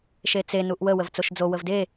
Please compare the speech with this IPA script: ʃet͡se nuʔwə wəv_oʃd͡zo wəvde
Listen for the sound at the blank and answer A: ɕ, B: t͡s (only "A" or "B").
B